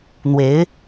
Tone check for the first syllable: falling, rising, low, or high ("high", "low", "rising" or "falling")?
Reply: rising